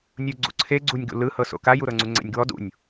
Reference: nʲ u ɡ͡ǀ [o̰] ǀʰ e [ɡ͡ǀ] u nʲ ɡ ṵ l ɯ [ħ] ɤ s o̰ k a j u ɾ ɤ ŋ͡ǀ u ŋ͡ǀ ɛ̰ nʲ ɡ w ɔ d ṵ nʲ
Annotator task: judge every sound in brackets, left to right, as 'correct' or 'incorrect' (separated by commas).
incorrect, correct, incorrect